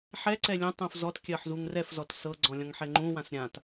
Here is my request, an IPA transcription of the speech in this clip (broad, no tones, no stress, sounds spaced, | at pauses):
ħ ɛ ǀ ɛ lʲ ũ tˤ ũ f z ɔ t kʲ ɜ ħ z u ŋ r ɛ f z ɔ t s ɤ ɡ͡ǀ ɔ̃ lʲ ɔ̃ ŋ ħ ɛ ŋ͡ǃ ũ w ã s ɾʲ ã t